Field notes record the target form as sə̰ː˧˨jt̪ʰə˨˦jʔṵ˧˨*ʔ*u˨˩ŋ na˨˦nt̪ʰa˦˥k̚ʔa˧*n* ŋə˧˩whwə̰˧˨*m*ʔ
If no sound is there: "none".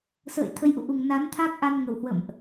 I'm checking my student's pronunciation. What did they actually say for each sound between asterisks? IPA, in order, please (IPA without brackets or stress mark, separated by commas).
ʔ, n, m